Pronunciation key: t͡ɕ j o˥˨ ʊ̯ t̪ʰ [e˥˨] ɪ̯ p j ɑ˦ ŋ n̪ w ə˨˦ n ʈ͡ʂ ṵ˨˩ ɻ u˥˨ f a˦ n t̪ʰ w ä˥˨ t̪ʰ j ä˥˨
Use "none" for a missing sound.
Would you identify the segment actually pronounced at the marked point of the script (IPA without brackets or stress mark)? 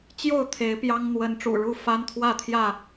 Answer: e˨˦